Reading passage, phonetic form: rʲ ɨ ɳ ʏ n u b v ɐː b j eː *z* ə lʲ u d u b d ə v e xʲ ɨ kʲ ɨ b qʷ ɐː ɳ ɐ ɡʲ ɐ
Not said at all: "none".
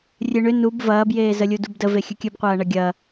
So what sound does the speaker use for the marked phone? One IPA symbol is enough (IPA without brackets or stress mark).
z